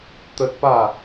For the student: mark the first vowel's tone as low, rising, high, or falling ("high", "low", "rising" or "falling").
high